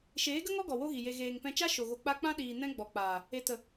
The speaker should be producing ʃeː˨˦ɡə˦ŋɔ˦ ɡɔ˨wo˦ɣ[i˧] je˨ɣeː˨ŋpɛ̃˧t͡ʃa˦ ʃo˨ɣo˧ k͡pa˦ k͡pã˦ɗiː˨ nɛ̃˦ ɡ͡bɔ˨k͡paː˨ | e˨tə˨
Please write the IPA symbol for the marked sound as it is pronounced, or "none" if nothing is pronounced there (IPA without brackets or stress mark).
i˨